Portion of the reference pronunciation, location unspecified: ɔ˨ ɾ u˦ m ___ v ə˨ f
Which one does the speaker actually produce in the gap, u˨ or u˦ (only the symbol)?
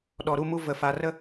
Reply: u˦